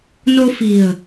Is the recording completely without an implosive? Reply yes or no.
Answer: yes